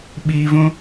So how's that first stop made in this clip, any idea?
implosive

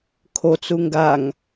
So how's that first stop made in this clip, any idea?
aspirated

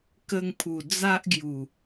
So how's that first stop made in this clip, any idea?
plain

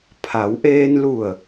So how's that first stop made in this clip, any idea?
aspirated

